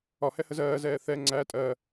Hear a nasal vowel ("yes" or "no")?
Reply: no